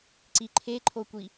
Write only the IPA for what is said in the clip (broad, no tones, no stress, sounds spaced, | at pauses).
ǀ i ǃʰ e ǃʰ o kʷ i